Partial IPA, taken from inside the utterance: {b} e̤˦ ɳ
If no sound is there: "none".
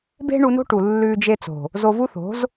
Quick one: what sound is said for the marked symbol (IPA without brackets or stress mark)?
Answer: b